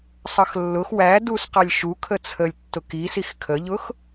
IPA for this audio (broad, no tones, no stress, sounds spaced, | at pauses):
sˤ ʌ x lː ʊ x w æ d u s q ɑ lʲ ʃ u kʰ ə t͡sʰ ə lʲ tː ʊ k i s i x kʰ ə ʎ ʊ x